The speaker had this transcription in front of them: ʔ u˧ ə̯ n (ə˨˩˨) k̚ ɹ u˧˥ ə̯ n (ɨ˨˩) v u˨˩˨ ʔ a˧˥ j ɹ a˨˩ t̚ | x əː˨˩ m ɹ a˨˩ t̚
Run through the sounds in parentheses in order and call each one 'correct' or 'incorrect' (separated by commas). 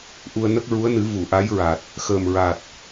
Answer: incorrect, incorrect